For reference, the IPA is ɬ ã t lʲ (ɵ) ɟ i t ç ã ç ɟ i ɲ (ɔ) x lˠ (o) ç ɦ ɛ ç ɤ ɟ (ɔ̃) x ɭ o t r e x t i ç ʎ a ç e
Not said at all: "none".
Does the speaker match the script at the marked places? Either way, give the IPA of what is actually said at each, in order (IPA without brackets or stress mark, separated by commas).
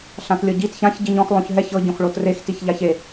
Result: ɤ, ɔ̃, õ, õ